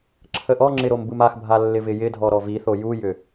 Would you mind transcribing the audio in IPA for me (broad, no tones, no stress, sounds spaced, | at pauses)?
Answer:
ǁʰ ə ʔ ɔ ŋ͡ǁ ɪ ɾ o m b ɯ m a x bʱ a lː ɪ v ɪ j ɪ dʱ ɔ ɾ ɔ v i θ o j u j ʏ